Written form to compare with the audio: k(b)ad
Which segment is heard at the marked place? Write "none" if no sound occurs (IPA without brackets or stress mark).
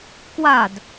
w